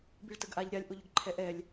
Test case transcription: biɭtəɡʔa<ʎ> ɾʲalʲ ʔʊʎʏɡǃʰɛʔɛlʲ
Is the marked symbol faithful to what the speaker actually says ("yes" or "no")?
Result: yes